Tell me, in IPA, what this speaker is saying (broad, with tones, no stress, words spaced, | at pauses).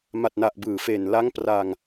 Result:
ma˨˩t̚na˨˩ʔ bɯː˨˩fe˨˩n la˦˥ŋ pra˧ŋ